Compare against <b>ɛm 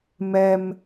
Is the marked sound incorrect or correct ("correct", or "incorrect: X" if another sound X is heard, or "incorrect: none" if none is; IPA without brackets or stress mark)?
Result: incorrect: m